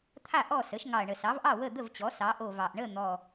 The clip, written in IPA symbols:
t̪ʰ a˥˩ ʔ ɔ˥˩ s ə˩˥ ʃ ŋ ɑ˨˩ ɐ̯ ɳ ə˨˩ s ɑ˩˥ v ʔ ɑ˥˩ w ə˥˩ d̪ ə˥˩ v t͡ɕ ɔ˩˥ s ɑ˩˥ ʔ o˨˩ v ɑ˨˩ ʔ ɳ ə˥˩ n̪ ɔ˨˩

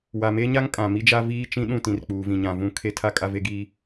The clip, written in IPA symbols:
w a˨ m e˦ ɲ a˦ ŋ kʼ ã˨ m i˦ d͡ʒ a˦ v iː˦ t͡ʃ ĩ˦ ɗ ũ˦˨ t ĩ˨ r k͡p uː˨ v ĩ˨ ɲ ã˨ v ũ˦˨ kʰ e˦ tʰ a˦ kʼ a˦ v e˦ ɡ iː˦

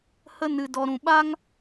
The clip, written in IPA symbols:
h ə˦ n ɨ˧ d ɔ˧ ɾ ũ˨ ɓ a˦ ŋ

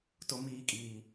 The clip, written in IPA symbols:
t ʊ˦ m iː˦ kʼ iː˦

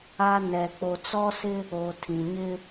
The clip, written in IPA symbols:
a˦ n ɛ˨ k͡p o˨ t͡s ɔ˦ s ɪ˦ | o˨ tʰ ĩ˨ ɲ ɪ˦

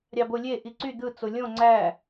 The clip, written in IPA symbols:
ɾʲ ɑ b o lʲ e ʔ i ǀ y d̪ ɯ t͡s o lʲ õ ŋ͡ǀ æ

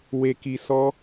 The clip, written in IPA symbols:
w e˨ k i˨ s ɔ˧

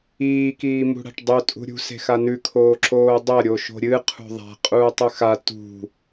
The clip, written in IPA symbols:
iː k iː m ṳ ɽ a̤ ʈ dˤ ɵ tʼ ṳ ɾʲ ṳ s e̤ x a n ʉ kʰ oː ǁ oː dˤ ɐ ɾʲ o ʃ o̤ ɾʲ ɨ qʰ ṳ ðˤ a̤ qʼ uː tˤ ʉ x a t ṳ

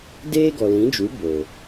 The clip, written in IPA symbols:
d eː˦ ɡ ɔ˨ l ĩ˨˦ d͡ʒ u˨˦ b o˨

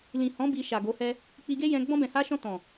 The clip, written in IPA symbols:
l ĩ˨ h ɔ̃˨˦ b i˧ ʃ a˨ ɡ o˨˦ h ɛ˦ | k͡p i˧ ɡ e˦ j ɛ̃˧ ɡ͡b ɔ̃˧ b ɛ̃˨ h a˧ ʃ ɔ̃˧ t ɔ̃˨

